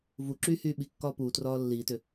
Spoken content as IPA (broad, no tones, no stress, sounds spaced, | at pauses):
v u ǁ yː h yː ɓ i kː ɒː p uː t r ɒː lː iː t ʏ